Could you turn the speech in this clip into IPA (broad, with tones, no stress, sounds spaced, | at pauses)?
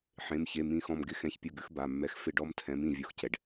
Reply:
ħ ẽ˩˧˩ m ç e˩˧˩ m ĩ˦˨ x ɔ̃˦˨ m ɡ ɪ˦ x ɛ̃˨˥ ç pʲ o˦˨ ɡ ʉ˦ x b a˩˧˩ mː ɛ˨˥ x f ɪ˦˨ ɖ ɔ˦ m tʰ ɛ̃˨˥ m ĩ˦˨ vʲ o˨˥ x c ɛ˩ ɖ